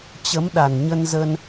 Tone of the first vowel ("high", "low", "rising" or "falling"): rising